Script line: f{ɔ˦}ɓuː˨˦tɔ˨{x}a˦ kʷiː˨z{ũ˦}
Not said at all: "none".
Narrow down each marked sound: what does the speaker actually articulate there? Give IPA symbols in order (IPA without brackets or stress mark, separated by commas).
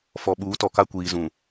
ɔ˨, k, ũ˨